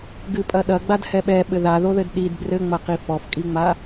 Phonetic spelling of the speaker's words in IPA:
ɡ ɨ pʼ ɐ ɗ ɐ ɡ͡b a d h ɛ ɓ ɛ ɓ ɘ ð a ð o ð ɘ d ɗ i d b r ɘ ŋ͡m ɐ q i f ɔ f kʼ i ŋ͡m a

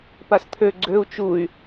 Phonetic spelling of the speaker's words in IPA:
p a s t̪ʰ ø ɡ͡ǀ ø u̯ t͡ʃ u y̯

